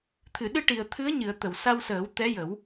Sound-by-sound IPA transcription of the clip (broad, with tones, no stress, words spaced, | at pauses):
t̪ʰɨ˨˩˨ɗɨ˧ʈi˨˩ə̯ t̪ʰɨ˧˥ə̯ɲɨ˨˩˨ə̯ t̪ə˨˩˨wsa˧wsəː˨˩˦w t̪ɛ˧˥jə˨˩˦w